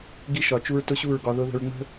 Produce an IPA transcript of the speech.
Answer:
ɡi˧ʃɒ˨t͡ʃu˧ɹ tʊ˦ɕu˦˨ɹɡɒ˧ ðʊ˧ ðə̤˧ɹŋ͡mə̤˦

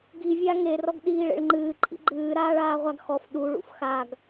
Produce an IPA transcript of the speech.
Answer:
ɡi vʲaŋe rɔɡɗiːɭḛɭŋ͡ǃɨː ǃʼḭɡ͡ǃɨː ɾaːɭaːʁʷaɡxɔf ɗu ɭṵfxaɡ

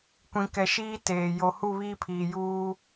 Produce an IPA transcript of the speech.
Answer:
kʷĩ˨kɛ˨ʃiː˦teː˨ jo˨hu˦˨βiː˦pʰiː˨ juː˦

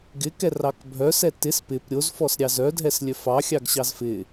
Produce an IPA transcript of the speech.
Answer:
ɡɪkɛ rɑkbʱœ sɛtɪs pɪp ɾʲozfɔs ɾʲɑzœdʱɛslʲœ fɑxʲɑɡ ɕɑzfɪ

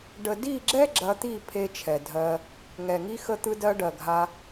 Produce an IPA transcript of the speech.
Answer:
ɖə˨di˦˨ɡ͡ǁɛ˦ ɡ͡ǁɐ˧t̪i˦˨pʰe˧ t͡ʃʰɛ˨dʱɜ˧ | ŋɛ˨ŋi˧xə˧t̪ɯ˧ dɜ˧ɖɜ˨ɡʱa˧

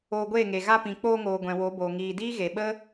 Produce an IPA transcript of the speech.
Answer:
oː˧ɡʷeː˦˨ŋe˨ ɣa˧pĩ˨k͡poː˧ŋoː˨ ɡʷɛ̃˨wo˨˦boː˨ ŋiː˨diː˦ ɣe˨ɓə˦

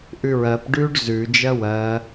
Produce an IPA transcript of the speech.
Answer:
ʔʉɹɜp ɖʉɖ zʉ d͡ʒɜwɜ

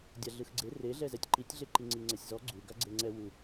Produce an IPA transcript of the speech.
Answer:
dʲaɮɯxɡ͡ǀe reɮɛ zɛtʲǃitʲɮe ǃiŋ͡ǀiŋ͡ǀɛsʲzɔ ɡ͡ǀu ɡaɡ͡ǀeŋ͡ǀɛ wu

